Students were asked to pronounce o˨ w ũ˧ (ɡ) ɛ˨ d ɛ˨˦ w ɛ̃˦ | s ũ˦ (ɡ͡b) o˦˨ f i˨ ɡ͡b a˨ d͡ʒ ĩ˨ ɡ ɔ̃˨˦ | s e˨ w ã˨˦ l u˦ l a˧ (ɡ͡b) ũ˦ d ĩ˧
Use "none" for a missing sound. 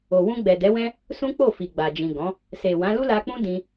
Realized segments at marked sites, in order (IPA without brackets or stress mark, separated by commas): ɡ͡b, k͡p, k͡p